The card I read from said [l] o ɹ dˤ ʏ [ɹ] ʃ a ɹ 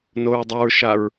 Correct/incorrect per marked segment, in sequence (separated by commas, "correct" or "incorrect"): incorrect, correct